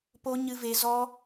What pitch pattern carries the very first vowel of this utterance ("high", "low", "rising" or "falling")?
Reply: high